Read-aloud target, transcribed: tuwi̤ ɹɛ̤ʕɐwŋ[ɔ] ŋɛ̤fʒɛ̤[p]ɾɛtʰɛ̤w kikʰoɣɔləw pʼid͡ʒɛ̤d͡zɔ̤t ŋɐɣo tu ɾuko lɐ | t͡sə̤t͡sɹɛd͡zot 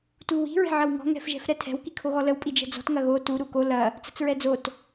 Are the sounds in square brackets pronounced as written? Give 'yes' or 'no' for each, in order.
no, no

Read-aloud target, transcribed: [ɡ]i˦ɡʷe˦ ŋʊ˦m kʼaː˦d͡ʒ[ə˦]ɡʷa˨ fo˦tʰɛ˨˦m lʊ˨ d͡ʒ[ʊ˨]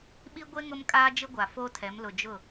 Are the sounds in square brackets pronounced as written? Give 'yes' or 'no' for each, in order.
no, no, no

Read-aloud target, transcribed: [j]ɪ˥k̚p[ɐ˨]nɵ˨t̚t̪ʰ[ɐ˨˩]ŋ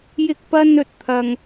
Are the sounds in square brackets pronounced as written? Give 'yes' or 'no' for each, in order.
yes, no, no

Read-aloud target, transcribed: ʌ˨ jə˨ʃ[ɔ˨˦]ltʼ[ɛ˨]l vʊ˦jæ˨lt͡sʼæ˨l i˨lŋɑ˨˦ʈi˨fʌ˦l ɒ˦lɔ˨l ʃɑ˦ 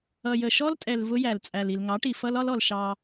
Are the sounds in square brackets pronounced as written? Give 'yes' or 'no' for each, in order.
no, yes

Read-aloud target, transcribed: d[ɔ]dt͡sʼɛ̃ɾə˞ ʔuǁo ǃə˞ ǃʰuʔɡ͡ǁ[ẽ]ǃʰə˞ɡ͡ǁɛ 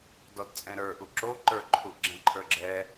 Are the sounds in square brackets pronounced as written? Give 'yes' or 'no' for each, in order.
yes, no

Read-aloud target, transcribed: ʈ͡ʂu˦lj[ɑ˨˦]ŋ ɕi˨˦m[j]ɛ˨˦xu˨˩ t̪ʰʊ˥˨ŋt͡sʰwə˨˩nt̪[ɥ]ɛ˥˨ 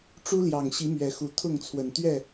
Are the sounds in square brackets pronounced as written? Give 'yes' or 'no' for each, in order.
no, no, yes

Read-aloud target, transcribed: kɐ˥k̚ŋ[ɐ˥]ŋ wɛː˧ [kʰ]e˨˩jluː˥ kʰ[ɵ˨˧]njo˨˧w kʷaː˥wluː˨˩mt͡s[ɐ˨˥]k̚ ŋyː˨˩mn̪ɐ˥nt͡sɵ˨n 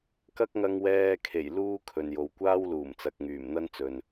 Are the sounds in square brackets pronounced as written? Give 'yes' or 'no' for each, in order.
no, yes, no, no

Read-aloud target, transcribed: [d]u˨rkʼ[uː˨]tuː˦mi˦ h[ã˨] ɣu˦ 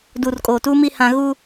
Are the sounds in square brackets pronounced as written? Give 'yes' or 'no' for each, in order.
yes, no, no

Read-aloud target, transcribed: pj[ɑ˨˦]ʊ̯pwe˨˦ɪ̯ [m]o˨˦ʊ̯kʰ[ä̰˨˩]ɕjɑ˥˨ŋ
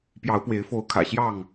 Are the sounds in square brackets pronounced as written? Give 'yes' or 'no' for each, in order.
yes, no, yes

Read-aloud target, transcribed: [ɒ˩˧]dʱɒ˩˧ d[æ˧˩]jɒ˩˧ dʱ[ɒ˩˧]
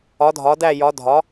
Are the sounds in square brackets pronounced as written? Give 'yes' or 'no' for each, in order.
yes, yes, yes

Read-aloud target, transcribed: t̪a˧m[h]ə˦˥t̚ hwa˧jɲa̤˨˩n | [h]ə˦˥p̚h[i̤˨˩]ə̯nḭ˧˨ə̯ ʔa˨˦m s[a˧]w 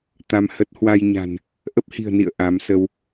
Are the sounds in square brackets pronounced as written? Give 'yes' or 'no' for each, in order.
yes, no, yes, no

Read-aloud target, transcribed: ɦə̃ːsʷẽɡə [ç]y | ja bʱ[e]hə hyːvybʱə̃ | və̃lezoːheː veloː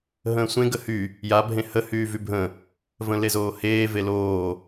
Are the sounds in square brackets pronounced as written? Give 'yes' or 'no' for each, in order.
no, no

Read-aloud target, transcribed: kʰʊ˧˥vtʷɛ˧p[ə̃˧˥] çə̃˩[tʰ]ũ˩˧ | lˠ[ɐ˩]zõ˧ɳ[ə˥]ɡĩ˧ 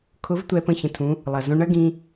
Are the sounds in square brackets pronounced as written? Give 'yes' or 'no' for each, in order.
no, yes, yes, no

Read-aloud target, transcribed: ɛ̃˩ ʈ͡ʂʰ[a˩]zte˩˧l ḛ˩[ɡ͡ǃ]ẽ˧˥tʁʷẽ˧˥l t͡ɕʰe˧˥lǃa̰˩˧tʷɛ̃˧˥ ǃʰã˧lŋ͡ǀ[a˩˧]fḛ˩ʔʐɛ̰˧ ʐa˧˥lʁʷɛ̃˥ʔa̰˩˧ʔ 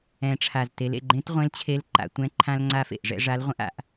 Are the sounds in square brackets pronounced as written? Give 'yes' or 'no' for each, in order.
yes, yes, no

